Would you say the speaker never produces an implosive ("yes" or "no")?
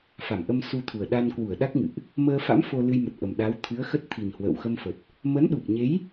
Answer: no